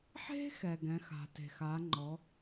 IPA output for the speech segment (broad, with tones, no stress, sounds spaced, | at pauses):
ħ e̤˥ x ɛ˩ ɡ ɛ̃˩˧ x a̤˩ t e̤˩ x a˩˧ ŋ͡ǃ ɔ˩˧